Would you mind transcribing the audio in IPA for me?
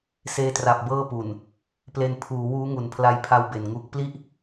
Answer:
s eː˧ t r a˨˩ p̚ b ɤː˥˩ p u˨˩ n | p l e˧ n pʰ uː˩˦ w uː˦˥ ŋ u˩˦ n pʰ l a˧ j pʰ a˧ w b e˨˩ n ŋ u˦˥ k̚ p l i˥˩ ʔ

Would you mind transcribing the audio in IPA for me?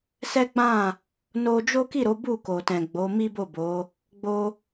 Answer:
s ɛ˦ ɡ͡b ã˦˨ | n o˧ d͡ʒ o˦ k i˦˨ ɾ o˨˦ b u˦˨ k o˨ t ɛ̃˨ ɡ͡b o˨˦ m i˦ b o˦˨ b o˨˦ | ɡ͡b o˧

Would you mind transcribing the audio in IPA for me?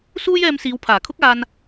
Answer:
s uː˥ j ɛː˧ m s iː˨˧ w pʰ aː˨˩ kʰ ʊ˥ k̚ aː˧ n

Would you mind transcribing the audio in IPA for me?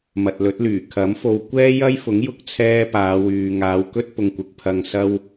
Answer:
m ɐ˨ t̚ l ɵ˨˥ t̚ l yː˨˩ kʰ ɐ˨˥ m f o˧ w kʷ ɛː˥ j ɐ˥ j f ʊ˨˥ ŋ j ʊ˥ k̚ t͡sʰ ɛː˥ p aː˨˧ w yː˨ ŋ aː˨˧ w k ɵ˥ t̚ p ʊ˧ ŋ kʷ ɪ˧ k̚ pʰ ɐ˧ ŋ s ɐ˥ w

